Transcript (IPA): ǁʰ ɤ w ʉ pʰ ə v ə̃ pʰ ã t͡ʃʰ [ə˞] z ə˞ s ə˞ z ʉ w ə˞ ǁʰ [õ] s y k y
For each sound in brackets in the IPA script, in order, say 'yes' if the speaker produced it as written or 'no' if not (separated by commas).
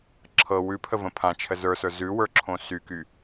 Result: no, yes